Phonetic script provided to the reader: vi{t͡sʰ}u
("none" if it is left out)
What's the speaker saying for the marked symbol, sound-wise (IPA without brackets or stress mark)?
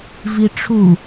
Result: ʈ͡ʂʰ